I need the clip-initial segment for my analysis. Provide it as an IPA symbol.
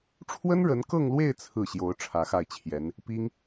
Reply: ʈ͡ʂʰ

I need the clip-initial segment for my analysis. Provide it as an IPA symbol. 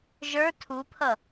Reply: ʒ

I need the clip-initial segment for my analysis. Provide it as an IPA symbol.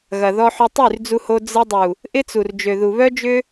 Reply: ɣ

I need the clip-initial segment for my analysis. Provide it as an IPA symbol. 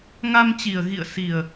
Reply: ŋ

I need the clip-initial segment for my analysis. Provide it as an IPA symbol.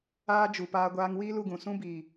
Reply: aː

